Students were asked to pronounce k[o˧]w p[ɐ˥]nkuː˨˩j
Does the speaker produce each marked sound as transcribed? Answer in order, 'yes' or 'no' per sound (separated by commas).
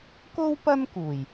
no, yes